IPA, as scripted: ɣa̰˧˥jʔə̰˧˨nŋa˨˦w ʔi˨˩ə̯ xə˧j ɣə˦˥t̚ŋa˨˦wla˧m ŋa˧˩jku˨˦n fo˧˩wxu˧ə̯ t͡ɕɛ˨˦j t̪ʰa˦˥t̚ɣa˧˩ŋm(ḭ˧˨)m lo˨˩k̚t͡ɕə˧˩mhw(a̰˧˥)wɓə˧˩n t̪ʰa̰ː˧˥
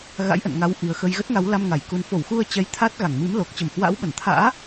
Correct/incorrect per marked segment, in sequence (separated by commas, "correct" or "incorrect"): incorrect, correct